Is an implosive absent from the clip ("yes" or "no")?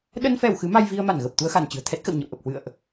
no